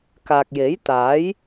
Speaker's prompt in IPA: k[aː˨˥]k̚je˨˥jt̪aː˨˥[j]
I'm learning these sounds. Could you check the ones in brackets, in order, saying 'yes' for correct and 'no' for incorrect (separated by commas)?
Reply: no, yes